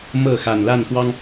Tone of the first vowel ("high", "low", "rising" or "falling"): falling